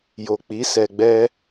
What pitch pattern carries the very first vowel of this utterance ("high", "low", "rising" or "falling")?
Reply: low